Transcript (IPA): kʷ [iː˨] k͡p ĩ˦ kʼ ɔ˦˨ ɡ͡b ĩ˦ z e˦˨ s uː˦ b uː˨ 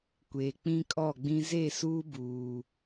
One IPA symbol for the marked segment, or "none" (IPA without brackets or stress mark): eː˨